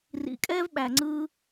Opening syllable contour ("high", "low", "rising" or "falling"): low